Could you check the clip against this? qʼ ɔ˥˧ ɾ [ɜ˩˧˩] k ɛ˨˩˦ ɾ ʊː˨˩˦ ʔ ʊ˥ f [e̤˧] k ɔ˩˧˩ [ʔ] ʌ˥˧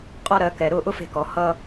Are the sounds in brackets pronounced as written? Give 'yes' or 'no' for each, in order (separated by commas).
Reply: yes, yes, no